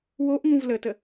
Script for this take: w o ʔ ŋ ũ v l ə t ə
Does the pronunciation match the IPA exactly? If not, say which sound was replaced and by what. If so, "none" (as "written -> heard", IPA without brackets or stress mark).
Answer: none